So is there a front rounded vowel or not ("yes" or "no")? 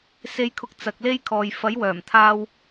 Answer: yes